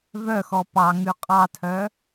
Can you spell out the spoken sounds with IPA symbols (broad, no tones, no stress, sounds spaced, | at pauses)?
v œ x ɔ p ɑ ŋ ʉ qʼ ɑ tʰ œ